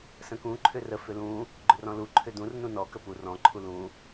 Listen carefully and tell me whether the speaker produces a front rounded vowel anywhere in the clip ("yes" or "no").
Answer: yes